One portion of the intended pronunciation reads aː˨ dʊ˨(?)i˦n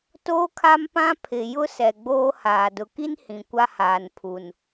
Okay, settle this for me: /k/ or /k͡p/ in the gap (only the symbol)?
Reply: k